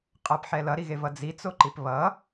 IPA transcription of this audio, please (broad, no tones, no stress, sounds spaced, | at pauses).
qʼ ʌ p ħ ɛ l ʌ ɾ i ɣ e v ʌ d͡z i t͡s o ǃ i p β ʌ